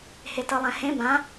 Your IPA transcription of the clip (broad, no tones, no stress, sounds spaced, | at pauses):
h e t ɤ lˠ ɛ̃ h ẽ b ã